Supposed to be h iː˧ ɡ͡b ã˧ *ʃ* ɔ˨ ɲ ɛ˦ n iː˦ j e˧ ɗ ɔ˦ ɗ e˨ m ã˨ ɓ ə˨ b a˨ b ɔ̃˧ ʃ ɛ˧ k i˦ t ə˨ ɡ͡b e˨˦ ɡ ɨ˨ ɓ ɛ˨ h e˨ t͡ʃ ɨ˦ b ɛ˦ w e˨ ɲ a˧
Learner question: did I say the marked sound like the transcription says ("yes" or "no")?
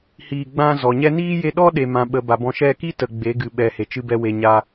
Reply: no